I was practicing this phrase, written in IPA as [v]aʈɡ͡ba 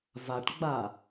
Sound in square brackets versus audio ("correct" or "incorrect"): correct